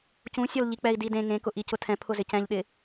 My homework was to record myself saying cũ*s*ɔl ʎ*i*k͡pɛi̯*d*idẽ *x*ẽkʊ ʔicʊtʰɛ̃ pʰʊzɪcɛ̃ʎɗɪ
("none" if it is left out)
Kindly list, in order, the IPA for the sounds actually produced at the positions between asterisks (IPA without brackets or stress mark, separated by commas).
sʲ, i, d, ŋ